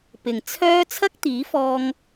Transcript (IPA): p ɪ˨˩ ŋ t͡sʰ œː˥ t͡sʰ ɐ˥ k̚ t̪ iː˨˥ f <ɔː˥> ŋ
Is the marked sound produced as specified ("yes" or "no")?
no